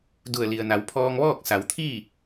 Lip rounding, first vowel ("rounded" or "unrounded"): rounded